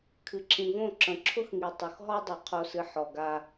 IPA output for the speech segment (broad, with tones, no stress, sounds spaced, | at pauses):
kʰ ɨ˨ ǁʰ ĩ˨ v õ˦˨ ǁ ə̃˨ ǁʰ ʊ˦ x ŋ i˨ tˤ ʊ˨ x ɦ ɔ˦ dˤ o˨ qʰ o˨ s ɨ˨ ħ ɔ˨ ɡ a˦